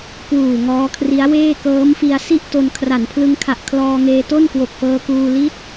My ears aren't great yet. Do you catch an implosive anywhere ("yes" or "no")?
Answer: no